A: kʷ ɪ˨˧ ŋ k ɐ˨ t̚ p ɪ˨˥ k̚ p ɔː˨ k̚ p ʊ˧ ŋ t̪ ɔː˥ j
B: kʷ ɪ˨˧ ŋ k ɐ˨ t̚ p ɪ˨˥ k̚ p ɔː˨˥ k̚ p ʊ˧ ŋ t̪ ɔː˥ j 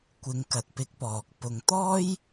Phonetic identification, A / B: A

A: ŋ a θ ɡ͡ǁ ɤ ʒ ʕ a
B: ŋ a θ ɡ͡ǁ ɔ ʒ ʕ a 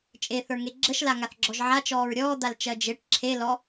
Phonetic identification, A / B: B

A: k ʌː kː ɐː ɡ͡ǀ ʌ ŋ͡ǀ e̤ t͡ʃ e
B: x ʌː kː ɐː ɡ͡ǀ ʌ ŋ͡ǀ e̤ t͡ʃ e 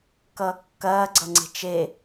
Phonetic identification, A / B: A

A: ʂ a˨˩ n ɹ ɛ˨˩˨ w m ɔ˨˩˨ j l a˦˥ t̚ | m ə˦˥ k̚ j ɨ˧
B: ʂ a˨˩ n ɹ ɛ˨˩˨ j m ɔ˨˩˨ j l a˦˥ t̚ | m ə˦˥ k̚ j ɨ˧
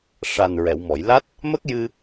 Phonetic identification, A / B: A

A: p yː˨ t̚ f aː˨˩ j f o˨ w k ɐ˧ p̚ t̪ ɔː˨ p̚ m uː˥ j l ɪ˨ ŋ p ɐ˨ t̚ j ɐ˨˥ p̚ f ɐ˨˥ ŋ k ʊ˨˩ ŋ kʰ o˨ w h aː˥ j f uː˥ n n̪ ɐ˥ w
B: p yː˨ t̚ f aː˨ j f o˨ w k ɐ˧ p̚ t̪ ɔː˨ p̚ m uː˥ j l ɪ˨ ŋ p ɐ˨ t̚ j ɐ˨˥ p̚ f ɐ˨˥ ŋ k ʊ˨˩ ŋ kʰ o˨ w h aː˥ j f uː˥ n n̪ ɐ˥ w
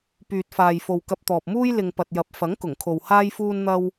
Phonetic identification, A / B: B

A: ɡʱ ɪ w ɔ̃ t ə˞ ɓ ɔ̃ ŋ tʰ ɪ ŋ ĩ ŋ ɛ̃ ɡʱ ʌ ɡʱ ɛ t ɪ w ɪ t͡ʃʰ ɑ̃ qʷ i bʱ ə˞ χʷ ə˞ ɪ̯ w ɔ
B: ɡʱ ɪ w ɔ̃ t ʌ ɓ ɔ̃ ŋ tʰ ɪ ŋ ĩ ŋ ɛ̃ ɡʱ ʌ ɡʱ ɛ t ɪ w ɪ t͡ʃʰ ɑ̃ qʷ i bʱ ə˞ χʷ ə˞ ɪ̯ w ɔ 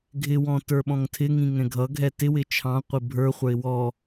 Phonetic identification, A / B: A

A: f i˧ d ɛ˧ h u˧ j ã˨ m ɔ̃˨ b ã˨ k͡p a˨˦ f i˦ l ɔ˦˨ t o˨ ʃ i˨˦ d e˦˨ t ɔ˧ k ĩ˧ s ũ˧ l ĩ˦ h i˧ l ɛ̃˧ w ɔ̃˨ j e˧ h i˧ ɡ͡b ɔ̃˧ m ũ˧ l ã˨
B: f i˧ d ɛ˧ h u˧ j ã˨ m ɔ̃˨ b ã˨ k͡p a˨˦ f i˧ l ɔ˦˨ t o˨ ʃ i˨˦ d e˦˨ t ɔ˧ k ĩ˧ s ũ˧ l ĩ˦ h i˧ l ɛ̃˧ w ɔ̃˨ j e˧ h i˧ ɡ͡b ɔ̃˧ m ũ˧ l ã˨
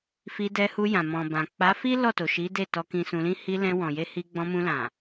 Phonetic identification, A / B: A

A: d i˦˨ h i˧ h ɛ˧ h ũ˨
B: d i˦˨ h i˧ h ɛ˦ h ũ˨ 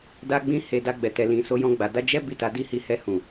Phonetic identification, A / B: A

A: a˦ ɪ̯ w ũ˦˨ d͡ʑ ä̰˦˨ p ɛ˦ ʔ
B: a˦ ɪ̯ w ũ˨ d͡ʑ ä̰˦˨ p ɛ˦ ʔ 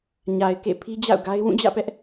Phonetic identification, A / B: A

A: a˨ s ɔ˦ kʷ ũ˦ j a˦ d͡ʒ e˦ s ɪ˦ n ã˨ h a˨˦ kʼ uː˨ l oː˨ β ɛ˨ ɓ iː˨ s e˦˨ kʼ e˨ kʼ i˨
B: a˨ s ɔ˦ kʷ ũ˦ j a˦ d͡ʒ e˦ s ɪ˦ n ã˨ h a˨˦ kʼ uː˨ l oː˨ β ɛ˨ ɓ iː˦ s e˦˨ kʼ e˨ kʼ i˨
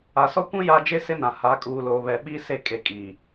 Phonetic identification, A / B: B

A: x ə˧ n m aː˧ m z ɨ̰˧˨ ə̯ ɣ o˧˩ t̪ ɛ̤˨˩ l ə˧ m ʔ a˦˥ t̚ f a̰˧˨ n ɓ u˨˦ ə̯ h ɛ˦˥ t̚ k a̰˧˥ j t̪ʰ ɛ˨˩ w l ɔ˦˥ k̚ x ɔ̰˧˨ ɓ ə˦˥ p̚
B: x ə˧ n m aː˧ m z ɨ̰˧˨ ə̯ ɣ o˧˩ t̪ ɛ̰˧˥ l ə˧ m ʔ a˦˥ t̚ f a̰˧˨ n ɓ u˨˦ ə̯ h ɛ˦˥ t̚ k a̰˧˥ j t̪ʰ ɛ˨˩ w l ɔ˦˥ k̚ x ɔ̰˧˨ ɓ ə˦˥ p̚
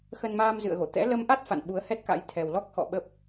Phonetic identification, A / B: B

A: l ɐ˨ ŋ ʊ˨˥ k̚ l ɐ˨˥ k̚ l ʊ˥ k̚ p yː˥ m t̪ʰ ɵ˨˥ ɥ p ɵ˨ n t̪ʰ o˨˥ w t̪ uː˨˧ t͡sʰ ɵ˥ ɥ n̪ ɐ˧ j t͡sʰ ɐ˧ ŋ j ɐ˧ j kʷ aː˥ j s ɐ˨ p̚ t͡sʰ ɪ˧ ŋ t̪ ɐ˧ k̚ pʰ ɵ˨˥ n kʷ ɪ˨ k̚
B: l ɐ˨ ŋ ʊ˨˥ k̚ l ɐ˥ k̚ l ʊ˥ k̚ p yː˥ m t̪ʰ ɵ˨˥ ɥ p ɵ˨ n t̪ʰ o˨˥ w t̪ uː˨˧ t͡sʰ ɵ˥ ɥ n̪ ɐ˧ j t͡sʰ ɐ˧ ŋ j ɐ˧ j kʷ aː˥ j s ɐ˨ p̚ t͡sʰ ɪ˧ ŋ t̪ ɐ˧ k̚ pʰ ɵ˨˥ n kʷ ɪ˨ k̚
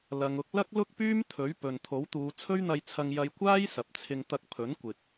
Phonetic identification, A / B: B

